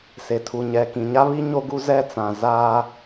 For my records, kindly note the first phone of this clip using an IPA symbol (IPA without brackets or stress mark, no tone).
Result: s